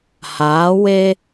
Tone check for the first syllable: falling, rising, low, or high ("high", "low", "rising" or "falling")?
rising